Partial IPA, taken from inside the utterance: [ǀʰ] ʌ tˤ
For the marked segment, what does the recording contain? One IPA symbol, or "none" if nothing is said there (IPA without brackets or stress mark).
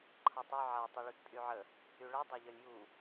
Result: ǃʰ